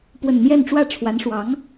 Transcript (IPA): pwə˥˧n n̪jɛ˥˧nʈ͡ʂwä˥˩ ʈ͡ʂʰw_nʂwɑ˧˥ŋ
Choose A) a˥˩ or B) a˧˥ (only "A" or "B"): B